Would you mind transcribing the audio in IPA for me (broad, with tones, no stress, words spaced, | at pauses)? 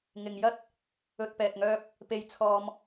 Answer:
ŋɪ˨ŋ jɐ˥t̚ | ɵ˧t̚pɛː˨t̚ ŋœː˥p̚ | pe˧jt͡sʰɔː˧m